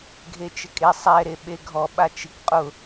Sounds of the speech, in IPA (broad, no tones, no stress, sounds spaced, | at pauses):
ɡʱ e t͡ʃ ɪ kʼ e sˤ ɛ ɾ e ɓ e ɡʱ ɔ ɓ a t͡ʃ i k qʼ ʊ